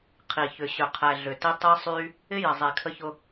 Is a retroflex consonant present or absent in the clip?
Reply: absent